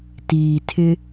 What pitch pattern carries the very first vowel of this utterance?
low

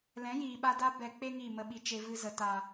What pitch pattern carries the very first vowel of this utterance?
rising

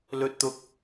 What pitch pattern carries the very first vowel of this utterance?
high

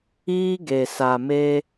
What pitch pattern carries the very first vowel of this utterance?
high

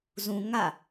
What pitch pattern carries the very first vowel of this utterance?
high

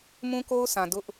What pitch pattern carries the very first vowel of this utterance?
high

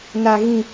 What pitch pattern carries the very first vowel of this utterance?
high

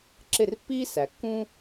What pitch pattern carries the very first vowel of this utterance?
falling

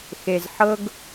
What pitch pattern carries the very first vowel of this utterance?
low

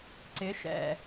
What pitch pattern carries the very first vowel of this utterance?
rising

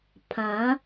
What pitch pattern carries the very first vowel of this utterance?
rising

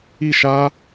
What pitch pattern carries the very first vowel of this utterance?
falling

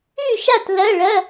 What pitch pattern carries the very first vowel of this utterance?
falling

